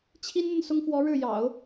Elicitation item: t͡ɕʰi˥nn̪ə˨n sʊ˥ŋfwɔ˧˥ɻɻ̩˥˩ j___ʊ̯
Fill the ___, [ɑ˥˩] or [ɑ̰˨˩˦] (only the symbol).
ɑ̰˨˩˦